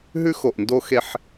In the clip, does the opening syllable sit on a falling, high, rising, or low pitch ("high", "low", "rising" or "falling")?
high